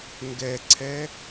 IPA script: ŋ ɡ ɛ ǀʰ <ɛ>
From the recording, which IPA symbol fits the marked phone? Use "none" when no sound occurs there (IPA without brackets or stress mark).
ɛ